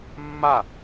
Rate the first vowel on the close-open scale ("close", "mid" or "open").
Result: open